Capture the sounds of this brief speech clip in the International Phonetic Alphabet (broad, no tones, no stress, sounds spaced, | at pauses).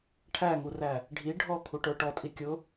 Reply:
ʈʰ æ ŋ u r æ | ɖʱ i ɖʱ ɔ kʰ u ʈ ə˞ ʈ ɔ tʼ i kʲ ʊ